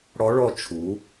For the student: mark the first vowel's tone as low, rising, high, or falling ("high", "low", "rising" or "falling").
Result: rising